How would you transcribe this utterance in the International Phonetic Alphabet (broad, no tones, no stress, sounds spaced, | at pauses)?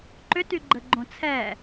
ǃ ʏ t y ɡ͡ǃ ə ɡ͡ǃ õ t͡sʰ ɛ